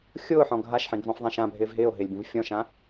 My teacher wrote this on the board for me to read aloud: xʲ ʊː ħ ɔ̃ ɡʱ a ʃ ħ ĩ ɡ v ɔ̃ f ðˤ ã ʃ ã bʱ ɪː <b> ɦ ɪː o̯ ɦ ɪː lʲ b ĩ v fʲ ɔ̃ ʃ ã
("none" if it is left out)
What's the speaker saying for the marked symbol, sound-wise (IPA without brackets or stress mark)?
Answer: v